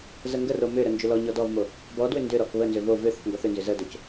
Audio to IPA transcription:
z ə ŋ ɡ ə r o m ʏ ɾ ə n d͡ʒ ʏ l ɔ ɲ ɔ d ɔ v m o | b ɔ d w ʏ n d ʏ ɾ ɔ k β ə n z ʏ v o v ʏ θ ʏ k ŋ ɡ ɔ θ ʏ n z ʏ z ə d o c

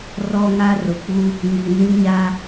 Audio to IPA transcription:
r ɔ˦ ŋ a˦ r ʊ˨ k͡p u˦ | ŋ i˨ n ĩ˦ ɲ a˦

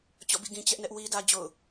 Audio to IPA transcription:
t͡ɕ ɔ̰˦˨ b ḭ˦˨ ɡ ĩ˨ t͡ɕ ɛ˦ ʔ n ɛ˦ ʔ w i˦ d ä˦ d͡ʑ o̰˦˨ ʊ̯

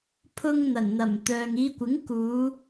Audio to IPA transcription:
pʰ ʊ˧ ŋ n̪ ɐ˨˩ n n̪ ɐ˨˩ m t̪ œː˨ ŋ iː˨˧ kʷ ɪ˨˥ ŋ k uː˨˧

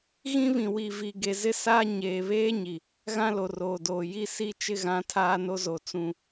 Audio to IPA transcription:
ɣ ĩ˦ β ĩ˨ w i˨ v i˨ ɡ e˨ z ɪ˦ s aː˦ ɲ eː˨ β eː˦ ɲ i˨ | ɣ ã˦ l o˨ r oː˨ d oː˨ j i˦ s i˦ t͡ʃ ɪ˦ ɣ ã˨˦ tʰ aː˦ n o˦ z o˨ t͡s ũ˨

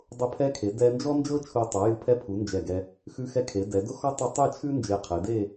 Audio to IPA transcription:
dˤ ʊ˧˩ pʰ ɛ˧ kʰ e˩˧ d ɛ˧ n d͡ʒ ɔ˥ n d͡ʒ ɤ˥ t͡ʃʰ u˧˩ tˤ ɤ˩˧ j ɨ˧˩ pʰ ɛ˧ pʰ u˩˧ n d͡ʒ ɛ˧˩ ɡ ɛ˧ | x ʉ˧ x ɛ˧ kʰ e˩˧ d ɛ˩˧ d ʊ˧ x ɔ˧ tˤ ɨ˧ tˤ ɨ˥˧ t͡ʃʰ ʉ˥ n d͡ʒ e˧˩ qʰ e˩˧ d e˥˧

